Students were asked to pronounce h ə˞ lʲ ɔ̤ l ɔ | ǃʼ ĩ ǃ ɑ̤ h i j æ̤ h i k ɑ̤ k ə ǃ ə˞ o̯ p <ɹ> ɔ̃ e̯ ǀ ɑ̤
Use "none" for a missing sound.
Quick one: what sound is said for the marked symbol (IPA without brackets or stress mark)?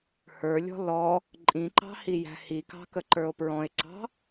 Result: ɹ